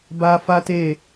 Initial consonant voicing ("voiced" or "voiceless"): voiced